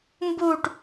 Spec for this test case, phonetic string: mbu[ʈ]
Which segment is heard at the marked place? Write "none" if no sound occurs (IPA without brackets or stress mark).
ʈ